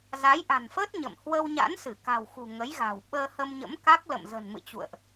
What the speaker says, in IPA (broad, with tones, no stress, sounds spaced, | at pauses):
z a˨˦ j ʔ a̤˨˩ n f əː˦˥ t̚ ɲ ə̰˧˨ m h w ə˧ w ɲ a̰˧˥ n s ɨ˧˩ k a̤˨˩ w x ṳ˨˩ ŋ ə˨˦ j ɣ a̤˨˩ w ɓ əː˧ h ə˧ m ɲ ə̰˧˥ m k a˦˥ k̚ l ə̰˧˨ m z ə̤˨˩ n m ɨ̰˧˨ t͡ɕ ṵ˧˨ ə̯ ʔ